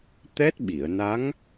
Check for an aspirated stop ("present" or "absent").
absent